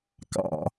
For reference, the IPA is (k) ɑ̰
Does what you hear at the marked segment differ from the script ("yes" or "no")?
no